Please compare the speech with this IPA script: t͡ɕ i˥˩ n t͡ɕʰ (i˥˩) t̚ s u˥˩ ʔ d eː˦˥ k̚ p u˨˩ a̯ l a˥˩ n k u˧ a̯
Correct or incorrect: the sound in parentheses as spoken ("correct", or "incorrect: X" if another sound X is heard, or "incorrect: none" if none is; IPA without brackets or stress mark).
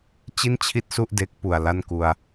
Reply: correct